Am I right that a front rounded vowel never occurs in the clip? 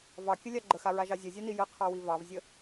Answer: yes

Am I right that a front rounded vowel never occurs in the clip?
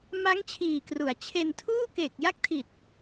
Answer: yes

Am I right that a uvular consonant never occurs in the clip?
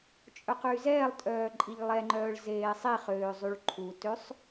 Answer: no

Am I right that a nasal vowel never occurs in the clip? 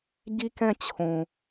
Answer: no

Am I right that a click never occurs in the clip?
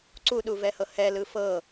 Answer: no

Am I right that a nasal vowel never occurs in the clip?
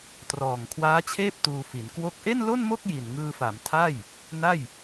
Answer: yes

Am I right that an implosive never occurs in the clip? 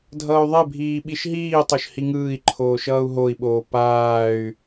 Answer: no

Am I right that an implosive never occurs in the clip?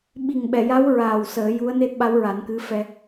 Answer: no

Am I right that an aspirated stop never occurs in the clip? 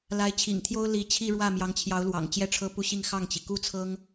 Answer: no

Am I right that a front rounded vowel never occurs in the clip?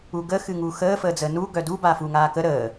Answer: no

